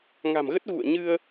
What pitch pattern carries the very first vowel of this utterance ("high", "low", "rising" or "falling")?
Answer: low